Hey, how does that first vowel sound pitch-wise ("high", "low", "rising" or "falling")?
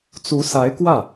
rising